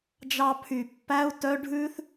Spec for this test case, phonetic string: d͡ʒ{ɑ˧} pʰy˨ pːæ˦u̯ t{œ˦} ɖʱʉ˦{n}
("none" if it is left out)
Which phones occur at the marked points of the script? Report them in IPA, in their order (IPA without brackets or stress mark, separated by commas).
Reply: ɑ˧, œ˦, θ